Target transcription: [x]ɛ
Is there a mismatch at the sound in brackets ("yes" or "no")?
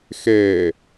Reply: no